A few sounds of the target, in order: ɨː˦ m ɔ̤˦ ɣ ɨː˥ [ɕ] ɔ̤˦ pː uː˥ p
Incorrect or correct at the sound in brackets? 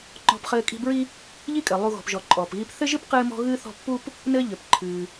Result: incorrect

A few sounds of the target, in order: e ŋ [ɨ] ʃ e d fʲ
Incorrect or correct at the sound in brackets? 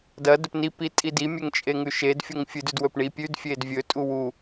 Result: incorrect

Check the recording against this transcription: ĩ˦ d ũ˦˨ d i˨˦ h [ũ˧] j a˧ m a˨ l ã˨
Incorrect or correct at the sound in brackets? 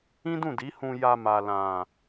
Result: correct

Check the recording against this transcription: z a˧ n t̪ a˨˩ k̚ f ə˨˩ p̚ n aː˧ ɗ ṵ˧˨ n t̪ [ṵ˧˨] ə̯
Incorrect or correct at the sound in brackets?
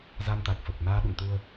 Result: incorrect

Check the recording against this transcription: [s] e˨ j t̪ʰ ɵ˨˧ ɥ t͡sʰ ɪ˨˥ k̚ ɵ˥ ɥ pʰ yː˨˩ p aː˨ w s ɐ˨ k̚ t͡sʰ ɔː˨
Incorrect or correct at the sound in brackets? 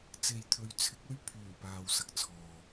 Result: incorrect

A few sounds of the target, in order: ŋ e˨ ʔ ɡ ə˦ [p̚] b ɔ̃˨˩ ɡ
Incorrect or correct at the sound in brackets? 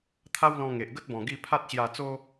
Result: incorrect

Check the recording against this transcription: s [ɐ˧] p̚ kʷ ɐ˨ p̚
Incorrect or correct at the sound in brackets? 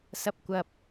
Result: correct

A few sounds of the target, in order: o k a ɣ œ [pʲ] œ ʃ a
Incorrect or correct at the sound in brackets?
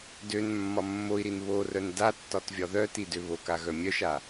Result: incorrect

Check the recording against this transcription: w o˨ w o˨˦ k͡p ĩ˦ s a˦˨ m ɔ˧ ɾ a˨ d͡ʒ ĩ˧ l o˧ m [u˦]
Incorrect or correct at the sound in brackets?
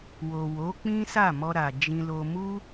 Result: correct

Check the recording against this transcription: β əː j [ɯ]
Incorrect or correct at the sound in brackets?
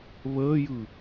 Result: correct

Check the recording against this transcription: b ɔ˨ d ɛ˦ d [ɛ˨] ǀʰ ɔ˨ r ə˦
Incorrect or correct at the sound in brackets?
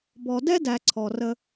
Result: incorrect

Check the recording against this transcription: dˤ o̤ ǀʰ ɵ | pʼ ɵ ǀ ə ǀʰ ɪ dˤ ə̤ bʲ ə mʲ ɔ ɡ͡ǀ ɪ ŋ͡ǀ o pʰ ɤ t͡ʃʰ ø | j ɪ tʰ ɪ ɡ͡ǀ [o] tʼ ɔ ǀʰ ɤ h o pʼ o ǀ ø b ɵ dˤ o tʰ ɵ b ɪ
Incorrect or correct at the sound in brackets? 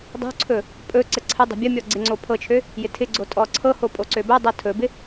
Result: correct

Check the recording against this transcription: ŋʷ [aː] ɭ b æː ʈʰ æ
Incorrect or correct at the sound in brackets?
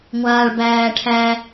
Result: correct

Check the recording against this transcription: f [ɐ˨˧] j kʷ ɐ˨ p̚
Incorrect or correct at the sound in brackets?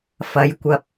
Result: correct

